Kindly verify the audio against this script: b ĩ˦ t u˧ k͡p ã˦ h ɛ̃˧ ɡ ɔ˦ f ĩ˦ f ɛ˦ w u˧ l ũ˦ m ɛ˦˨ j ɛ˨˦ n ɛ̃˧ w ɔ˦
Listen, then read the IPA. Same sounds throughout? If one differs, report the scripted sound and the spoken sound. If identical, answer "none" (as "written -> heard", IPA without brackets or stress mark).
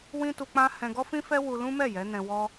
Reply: b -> w